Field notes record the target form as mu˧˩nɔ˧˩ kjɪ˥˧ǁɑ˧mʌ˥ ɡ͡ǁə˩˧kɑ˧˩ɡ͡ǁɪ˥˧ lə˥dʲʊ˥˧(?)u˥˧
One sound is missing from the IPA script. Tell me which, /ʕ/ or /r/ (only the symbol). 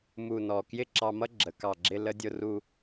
r